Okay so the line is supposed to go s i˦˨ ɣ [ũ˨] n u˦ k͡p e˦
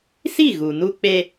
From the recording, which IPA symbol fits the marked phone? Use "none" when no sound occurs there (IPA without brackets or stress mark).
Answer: u˨